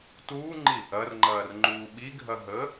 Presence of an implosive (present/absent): present